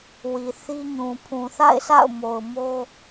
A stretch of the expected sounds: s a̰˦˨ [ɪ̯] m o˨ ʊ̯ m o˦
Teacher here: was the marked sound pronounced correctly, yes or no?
no